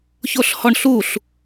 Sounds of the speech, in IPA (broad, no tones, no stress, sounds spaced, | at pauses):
ç o ɬ h ɔ ɳ ɬ u ɬ